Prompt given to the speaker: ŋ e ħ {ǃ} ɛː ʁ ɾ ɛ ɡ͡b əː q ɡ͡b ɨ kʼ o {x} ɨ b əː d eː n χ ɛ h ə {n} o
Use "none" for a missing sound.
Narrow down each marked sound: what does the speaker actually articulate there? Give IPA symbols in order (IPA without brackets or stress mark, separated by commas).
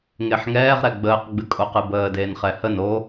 ŋ, q, n